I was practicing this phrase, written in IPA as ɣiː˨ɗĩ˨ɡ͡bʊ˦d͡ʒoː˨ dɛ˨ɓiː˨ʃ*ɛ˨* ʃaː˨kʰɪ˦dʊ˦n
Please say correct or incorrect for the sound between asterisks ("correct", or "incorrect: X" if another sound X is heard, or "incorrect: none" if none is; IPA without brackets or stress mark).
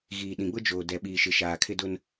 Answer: incorrect: ɪ˨